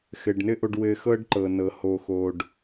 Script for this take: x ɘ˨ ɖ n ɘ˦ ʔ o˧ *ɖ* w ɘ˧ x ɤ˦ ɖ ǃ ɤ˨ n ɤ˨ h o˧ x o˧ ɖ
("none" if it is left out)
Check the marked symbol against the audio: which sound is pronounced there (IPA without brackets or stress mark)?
ɖ